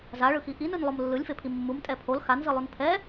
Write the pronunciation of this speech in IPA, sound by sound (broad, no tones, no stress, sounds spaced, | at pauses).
z a ɭ ɯ x i ʔ i n ɯ n lˠ o m lː ɯ lʲ f e pʰ i mː u m tʼ ɛ pʰ o l x a n z ɯ lˠ u n pʰ ɛ